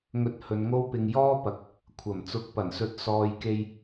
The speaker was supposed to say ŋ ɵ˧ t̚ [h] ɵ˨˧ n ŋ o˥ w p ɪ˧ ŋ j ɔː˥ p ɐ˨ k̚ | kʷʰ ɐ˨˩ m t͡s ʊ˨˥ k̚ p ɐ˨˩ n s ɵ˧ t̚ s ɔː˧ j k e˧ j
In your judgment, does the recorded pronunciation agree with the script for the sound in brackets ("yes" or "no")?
yes